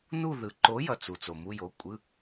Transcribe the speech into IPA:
n u˦˨ ð ɯ˨ ǃ o˨˥ j ʌ˦˨ t͡s u˨ t͡s o˨ m u˧˥˧ j o˨˥ kʷʼ ɯ˧˥˧

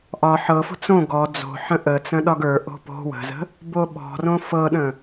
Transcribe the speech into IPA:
ʔ ɒ ħ ɤ f o̤ t͡s õ ɡ ɔ d͡z o̤ ħ ə̃ ʔ ə t͡s ə̃ ɗ ɒ ɡ ə˞ ʔ o̤ p o̤ w ə̤ z ə̤ | b o ɓ ɔ̤ r õ f ɤ ɗ ə̃

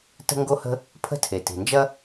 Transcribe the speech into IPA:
t ə̤˥ ŋ ɡ o˥ h ə̤˥ | pʰ ə̤˥ tʰ e˩ t i̤˩ n d͡ʒ ɐ˥

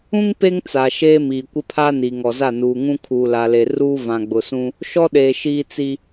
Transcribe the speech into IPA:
ũ˦ ŋ p e˦ ŋ t͡s a˨ ʃ eː˦ m iː˨ kʷ ɪ˦ pʰ a˦ n iː˨ ŋ ɔ˨ z a˦˨ n uː˨ ŋ ũ˦ kʰ uː˨ l a˨ l e˨ r uː˦ v ã˨ ɡ͡b ʊ˨ s ũ˦ | ʃ ɔ˦ ɗ eː˨ ʃ iː˦ t͡s i˦

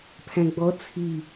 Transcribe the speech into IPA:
pʰ æ̃ ɡ͡b ɔ t͡sʰ i

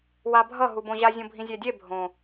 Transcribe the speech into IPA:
w a bʱ ʌ ɦ u b õ ʑ a zʲ õ bʱ ĩ zʲ ɛ dʲ e bʱ õ

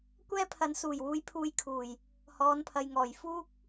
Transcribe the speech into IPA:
kʷ ɛː˥ pʰ ɐ˨˥ n s uː˨˩ j w uː˧ j pʰ uː˧ j kʰ uː˨˩ j | h ɔː˨˧ n pʰ ɐ˨ j ŋ ɔː˨˩ j f uː˥ k̚

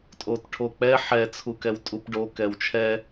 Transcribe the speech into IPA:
tʼ o t ʈʰ o k͡p ɛ ħ ɛ t͡sʰ u k ɛ w tʼ u p ɖ o k ɛ w t͡ʃʰ ɛ

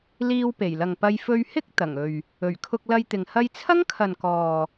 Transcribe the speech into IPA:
l iː˧ w p e˨˩ j l ɐ˨ ŋ p ɐ˧ j f ɵ˧ ɥ h ɪ˥ k̚ t̪ ɐ˨˩ ŋ ɵ˨ ɥ | ɵ˨˩ ɥ kʰ ʊ˧ k̚ l ɐ˧ j t̪ ɪ˨ ŋ h ɐ˧ j t͡sʰ ɐ˥ ŋ kʰ ɐ˨ n k ɔː˨

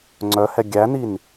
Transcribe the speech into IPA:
ŋ͡ǀ œ h ɛ ɡʲ æ n i n

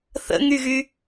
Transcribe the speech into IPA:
θ ə̰ ŋ y ɣ y

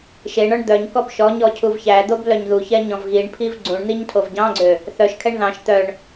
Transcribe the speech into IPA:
ʃ e ɳ ɔ ɳ d̪ œ ɲ k ɔ b ʃ ɔ ɲ ɔ cʰ u v ç æ d̪ o b l œ ɲ ð u ç ɛ ɲ ɔ̃ v ɣ i ɳ pʰ i v ɡ͡ǀ ũ ɳ n̪ i ɲ tʰ o v ɟ ɑ̃ ɡ͡ǀ ø | θ œ ʃ kʰ ɛ ɳ ð ɑ̃ ʃ t̪ œ ɳ

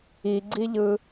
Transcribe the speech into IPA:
i ɡ͡ǀ i ʎ ɯ

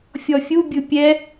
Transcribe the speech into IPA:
fʲ ɔ fʲ u bʲ ɯ pʲ ɛ

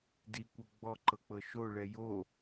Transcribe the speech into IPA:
d i kʷ ɤ ɡ͡b ɔ ǃ ɤ k͡p ɤ ʃ o ɭ ɛ j o

